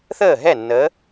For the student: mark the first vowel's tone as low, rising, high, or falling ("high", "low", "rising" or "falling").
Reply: falling